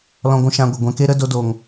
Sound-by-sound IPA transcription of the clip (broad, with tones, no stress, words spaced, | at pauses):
lɔ̃˧ɡʷũ˧ ʃã˧ɡʷə˨ ɡʷɛ̃˧ke˦ɾə˦ do˦do˧ŋ